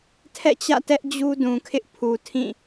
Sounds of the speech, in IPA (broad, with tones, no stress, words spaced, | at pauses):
tʰɛ̰˦˨t͡ɕä̰˦˨tɛ˦ʔ d͡ʑu˦dũ˨kʰɪ˦ʔ pʰu˨tʰĩ˦˨